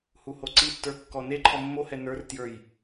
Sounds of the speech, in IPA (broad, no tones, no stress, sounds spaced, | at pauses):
h u h o ǀ i tː ə˞ kː ɔ n e ǃʰ ɔ mː o h ɛ n ə˞ r t j ə˞ j